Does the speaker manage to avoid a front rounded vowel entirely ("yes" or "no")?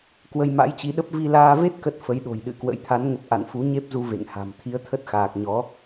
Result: yes